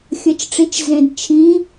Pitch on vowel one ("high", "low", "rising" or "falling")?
rising